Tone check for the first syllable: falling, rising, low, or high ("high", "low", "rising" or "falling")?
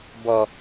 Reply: low